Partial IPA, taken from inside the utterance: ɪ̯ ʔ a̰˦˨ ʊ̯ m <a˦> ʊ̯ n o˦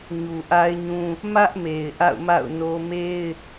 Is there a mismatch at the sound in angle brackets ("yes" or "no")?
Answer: yes